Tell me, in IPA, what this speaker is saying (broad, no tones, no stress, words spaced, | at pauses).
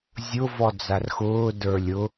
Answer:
zʲʊ vɔd͡zarxʊː də˞lʲʊ